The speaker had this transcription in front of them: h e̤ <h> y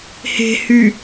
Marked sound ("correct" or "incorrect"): correct